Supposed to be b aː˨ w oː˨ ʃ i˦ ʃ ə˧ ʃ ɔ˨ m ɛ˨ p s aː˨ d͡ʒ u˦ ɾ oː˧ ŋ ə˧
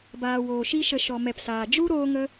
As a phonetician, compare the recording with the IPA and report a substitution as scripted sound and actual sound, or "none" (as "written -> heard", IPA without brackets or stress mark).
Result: none